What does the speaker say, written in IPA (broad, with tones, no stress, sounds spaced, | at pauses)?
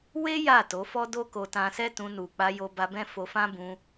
w e˦ j a˦˨ t o˨˦ f ɔ˦ d o˦ k o˧ t ã˧ s ɛ˦ t ũ˧ n u˨ k͡p a˧ j o˧ b a˧ b ɛ̃˦ f o˧ f ã˦ b ũ˧